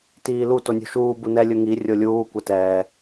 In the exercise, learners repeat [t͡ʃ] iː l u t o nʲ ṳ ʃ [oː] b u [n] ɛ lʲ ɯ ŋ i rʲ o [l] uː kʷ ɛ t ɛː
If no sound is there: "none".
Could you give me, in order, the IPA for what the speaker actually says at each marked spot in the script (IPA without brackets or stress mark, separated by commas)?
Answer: t, uː, n, lʲ